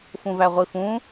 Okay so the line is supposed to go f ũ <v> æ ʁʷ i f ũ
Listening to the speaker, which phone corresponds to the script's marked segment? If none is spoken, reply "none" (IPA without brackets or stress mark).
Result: v